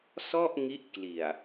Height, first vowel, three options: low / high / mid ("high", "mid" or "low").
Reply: mid